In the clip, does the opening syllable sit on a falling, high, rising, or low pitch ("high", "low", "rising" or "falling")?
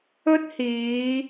high